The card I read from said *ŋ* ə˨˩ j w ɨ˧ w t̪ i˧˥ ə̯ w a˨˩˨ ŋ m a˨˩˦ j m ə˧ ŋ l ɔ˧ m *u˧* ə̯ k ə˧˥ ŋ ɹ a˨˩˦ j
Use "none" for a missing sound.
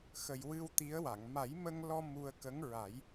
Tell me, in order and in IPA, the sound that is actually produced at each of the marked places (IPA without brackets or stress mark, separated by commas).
x, u˧